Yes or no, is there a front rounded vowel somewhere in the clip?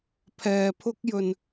no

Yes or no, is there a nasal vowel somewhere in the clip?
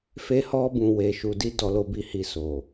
yes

